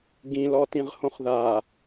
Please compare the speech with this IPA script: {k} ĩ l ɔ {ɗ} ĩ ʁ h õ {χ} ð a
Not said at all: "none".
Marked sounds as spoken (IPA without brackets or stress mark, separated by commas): ɡ, t, χ